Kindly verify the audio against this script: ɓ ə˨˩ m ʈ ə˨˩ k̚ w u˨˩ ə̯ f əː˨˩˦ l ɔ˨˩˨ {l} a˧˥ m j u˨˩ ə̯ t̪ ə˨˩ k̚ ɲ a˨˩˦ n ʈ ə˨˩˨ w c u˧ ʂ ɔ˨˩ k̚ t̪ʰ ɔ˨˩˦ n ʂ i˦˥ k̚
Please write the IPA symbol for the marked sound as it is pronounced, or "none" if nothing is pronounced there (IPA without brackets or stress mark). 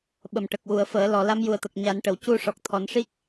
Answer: l